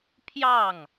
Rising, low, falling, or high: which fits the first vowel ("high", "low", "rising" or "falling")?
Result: falling